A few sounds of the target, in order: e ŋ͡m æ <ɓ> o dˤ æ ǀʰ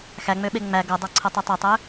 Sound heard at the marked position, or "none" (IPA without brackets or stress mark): ɡ